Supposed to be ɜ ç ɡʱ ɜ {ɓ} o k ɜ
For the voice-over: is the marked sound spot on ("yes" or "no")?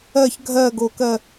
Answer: no